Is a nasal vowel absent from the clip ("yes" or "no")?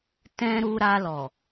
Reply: no